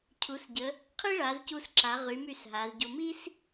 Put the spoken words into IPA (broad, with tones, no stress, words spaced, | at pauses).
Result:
cʰu˩˧sɟə˩˧ | qʰi˥ɭa˩˧zcu˧sǁa˩˧ ʁy˩˧my˧˩s ɦa˩˧zɟo˧ mi˥s